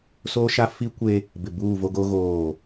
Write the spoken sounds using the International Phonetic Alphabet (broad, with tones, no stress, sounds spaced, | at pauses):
s oː˦ ʃ a˦ f i˦ kʷ e˦ | b ɪ˨ b uː˦˨ v o˦ ɡ o˦ ɣ oː˦˨